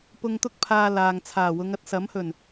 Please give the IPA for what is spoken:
p ʊ˧ ŋ t̪ ʊ˥ k̚ pʰ aː˧ l aː˨ ŋ t͡sʰ aː˨˩ w ʊ˨˧ ŋ ɐ˧ t̚ s ɐ˨˥ m h ɵ˨˩ n

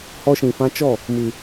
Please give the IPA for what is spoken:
h ɔ˧ ʃ ĩ˨ f ã˧ t͡ʃ ɔ˦˨ | m ɨ˨

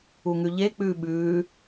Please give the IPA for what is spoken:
u ŋ ʉ ʎ e k͡p ʉː ɓ ʉː

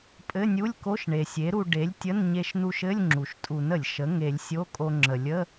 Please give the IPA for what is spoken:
pʼ ɘ˧˥˧ nʲ u˧˥˧ lʲ k o˧˥˧ ʃ ɳ e˩ sʲ e˩˥ ɾ u˧ ɖ e˩˥ lʲ tʲ ə˧˥˧ n ɲ e˧ ʃ n u˧ ʃ ɘ˧˥˧ lʲ ŋ͡ǁ u˩ ʃ tʼ u˨˩˦ n ə˩ lʲ ʃ ə˩˥ ŋ e˨˩˦ lʲ sʲ o˧˥˧ kʼ o˧ ŋ͡ǁ ə˩ lʲ ə˧˥˧

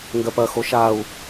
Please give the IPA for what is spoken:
ŋ ɡ ɜ p ɐ x o ʃ a u̯

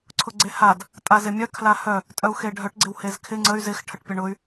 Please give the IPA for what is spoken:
ǀʰ ʊ ɡ͡ǀ e h a d | tʼ a z ɪ mʲ œ kʰ l a h œ | tʼ œ u̯ x e ɖʱ œ ʈ ɡ͡ǀ ɪ w h e z kʰ ɪ ŋ͡ǀ ə y̯ z ɪ x ʈʰ ə ʈ pʲ ə ɳ ʊ y̯

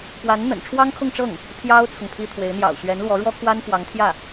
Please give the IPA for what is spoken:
p w a˧˥ n n̪ ə̰˨˩ n ʈ͡ʂʰ w ɑ˥ ŋ kʰ ʊ˥˧ ŋ ʈ͡ʂ ɤ˥˩ ŋ | pʰ j ɑ˥ ʊ̯ t͡sʰ ʊ˨ ŋ pʰ i˥ t̪ʰ w e˧˥ ɪ̯ n̪ j ɑ̰˨˩ ʊ̯ ɕ ɥ ɛ˧˥ n l w ɔ˧˥ ɻ w ɔ˥ kʰ w a˥ n f w ɑ˧˥ ŋ t̪ʰ j ä˥˩

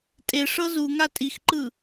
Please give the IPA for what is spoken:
tʼ e ʂ ɤ z u ŋ a tʼ i x ǃ ɯ

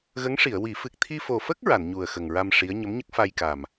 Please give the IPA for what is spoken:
ɣ ə˧˥ ŋ ʂ i˨˩˨ ə̯ w i˨˩˦ f ɨ˨˩ k̚ t̪ʰ i˧ f o˨˩ f ə˦˥ k̚ ɹ a˨˩˨ n ɲ u˨˩ ə̯ x ə˨˩ ŋ ɹ a˧ m ʂ i˧˥ ə̯ ɲ ə˧˥ m ɲ ə˦˥ k̚ f a˧ j k a˨˩ m

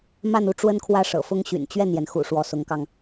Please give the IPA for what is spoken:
m a˥˧ n u˥˩ ʈ͡ʂ w ə˥ n kʰ w ä˥˩ ʂ ɤ̰˨˩ f ʊ˥ ŋ ɕ y̰˨˩ n t͡ɕ ɥ ɛ˥˩ n j ɛ˩ n x ṵ˨˩ ʂ w ɔ˧˥ s ʊ˧˥ ŋ k ɑ˧ ŋ

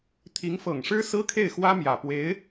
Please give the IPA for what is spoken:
t̪ʰ i˧˥ ŋ f ɤ˨˩ ŋ ʂ ɻ̩˥ s ɹ̩˥ kʰ e˥˩ ɪ̯ x w ä˥ m j ä˨˩ p w e˧˥ ɪ̯

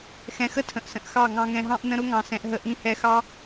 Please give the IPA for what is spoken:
x ɛ̃˧ x ə˦ tʰ ə̃˨ ʔ s ə̃˨ ʔ x ɑ˦˨ ŋ ɑ̃˧ ŋ ɛ̃˧ ɦ ɑ̃˦ ʔ n ə̃˧ ɾ ʊ˦ ŋ ɑ̃˨ s ɛ̃˧ ʔ ɦ ə˧ ʔ ĩ˧ h ɛ˧ x ɑ˦

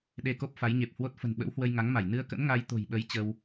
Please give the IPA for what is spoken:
ɗ e˧ k o˦˥ p̚ f a˨˦ j ɲ e˨˩ p̚ h w o˦˥ t̚ f ə̤˨˩ n ɓ ə̰˧˥ w h w ə˧ j ŋ a˨˦ ŋ m a˧˩ j n ɨ˧ ə̯ k ə̰˧˥ n ŋ a˧ j t̪ o̤˨˩ j ɓ ə˨˦ j t͡ɕ ə˧ w

